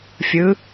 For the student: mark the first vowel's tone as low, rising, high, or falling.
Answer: rising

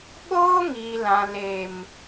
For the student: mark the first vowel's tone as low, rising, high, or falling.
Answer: high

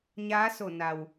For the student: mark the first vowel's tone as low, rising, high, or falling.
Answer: rising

